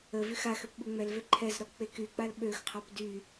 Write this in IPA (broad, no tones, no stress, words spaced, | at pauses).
əvyx axøp ɓuŋ͡mɛlvø ǃʰɛzɾɔ k͡pekyk͡pal ɓøxqʰap dy